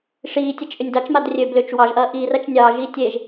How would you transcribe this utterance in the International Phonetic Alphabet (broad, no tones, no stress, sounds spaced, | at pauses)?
ʂ iː tʲ ɐ t͡ʃ ʔ ʏ nʲ d ɑ t͡ʃ m a d rʲ ø b l ʏ t͡ʃ w ɑ ʒ ʔ ɐː ʔ iː r ɐ t͡ʃ nʲ ɑː ʒ iː tʲ e ʒ